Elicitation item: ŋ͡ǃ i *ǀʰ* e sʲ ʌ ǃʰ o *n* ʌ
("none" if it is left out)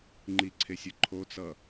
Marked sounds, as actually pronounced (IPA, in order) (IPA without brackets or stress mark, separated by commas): ǀʰ, t͡s